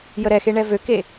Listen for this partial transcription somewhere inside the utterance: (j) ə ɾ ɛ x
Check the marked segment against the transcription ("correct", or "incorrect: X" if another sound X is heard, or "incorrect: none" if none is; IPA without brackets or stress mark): correct